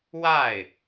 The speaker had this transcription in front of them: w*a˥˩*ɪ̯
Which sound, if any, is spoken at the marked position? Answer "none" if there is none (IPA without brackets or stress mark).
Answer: a˥˩